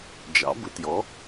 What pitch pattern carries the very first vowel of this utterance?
rising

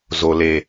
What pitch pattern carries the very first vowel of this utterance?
low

